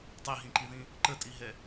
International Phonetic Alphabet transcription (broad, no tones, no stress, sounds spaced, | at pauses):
tˤ e ɦ ĩ ǃ i ð ĩ | ǃ ə tʼ i ɦ ɛ